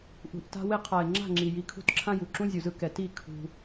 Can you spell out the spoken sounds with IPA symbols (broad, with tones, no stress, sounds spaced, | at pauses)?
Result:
ʔ ṳ˨ ʔ t a̤˧ w e˦ qʰ a˨ ɪ̯ ŋ͡ǁ a̤˦˨ ŋ͡ǁ i˨ j i˧ kʰ ṳ˦˨ t ǁʰ ã˦ j u˨ ǁ ũ˦ zʲ u˨ z ɯ˦ k ɛ˨ t i˦˨ kʰ ṳ˧